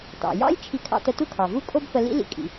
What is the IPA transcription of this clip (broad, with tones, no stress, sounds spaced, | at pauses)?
t ɑ̰˩ j ɑ̰˥ j t͡ʃʰ i˧ kʰ ɑ̰˧ t ə˧ t u˥ kʰ ɑ˩ v u˥ kʼ o˥ b f ə˧ l ḭ˥ l ḭ˧ kʼ ḭ˩